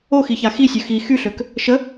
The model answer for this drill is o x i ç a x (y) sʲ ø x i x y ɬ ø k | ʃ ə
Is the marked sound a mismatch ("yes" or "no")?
yes